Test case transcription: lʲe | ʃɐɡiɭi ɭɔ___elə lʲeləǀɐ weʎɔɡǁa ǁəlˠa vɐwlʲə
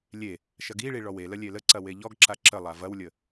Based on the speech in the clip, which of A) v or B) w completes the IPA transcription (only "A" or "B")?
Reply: B